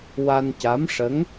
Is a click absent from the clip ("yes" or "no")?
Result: yes